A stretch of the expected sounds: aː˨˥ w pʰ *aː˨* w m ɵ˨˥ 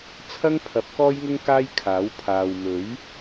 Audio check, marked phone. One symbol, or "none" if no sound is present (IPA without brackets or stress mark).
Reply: aː˨